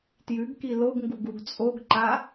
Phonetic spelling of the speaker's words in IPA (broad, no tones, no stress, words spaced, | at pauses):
tjʉɡki loɡŋɡuɡ uɡt͡sʼoɡǃa